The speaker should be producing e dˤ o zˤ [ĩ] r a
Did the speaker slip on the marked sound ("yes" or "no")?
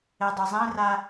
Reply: no